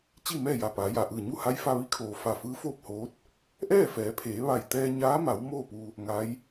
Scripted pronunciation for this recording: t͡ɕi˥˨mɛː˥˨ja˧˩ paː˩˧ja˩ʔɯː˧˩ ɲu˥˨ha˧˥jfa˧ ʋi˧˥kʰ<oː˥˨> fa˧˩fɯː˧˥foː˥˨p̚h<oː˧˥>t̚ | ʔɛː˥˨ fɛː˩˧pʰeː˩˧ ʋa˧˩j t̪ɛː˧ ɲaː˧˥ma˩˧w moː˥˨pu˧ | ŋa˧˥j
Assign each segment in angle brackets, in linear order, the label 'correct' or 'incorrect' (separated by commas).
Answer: incorrect, correct